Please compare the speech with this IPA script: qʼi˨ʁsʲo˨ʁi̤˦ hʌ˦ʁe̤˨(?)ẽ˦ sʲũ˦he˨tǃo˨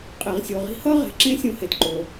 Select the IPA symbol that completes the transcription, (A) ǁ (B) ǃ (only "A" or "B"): A